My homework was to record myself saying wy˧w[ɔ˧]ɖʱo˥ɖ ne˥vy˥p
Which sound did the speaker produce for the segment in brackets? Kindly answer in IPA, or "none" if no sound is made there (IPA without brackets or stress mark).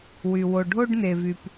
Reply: o˧